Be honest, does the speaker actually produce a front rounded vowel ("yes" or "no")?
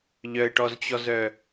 yes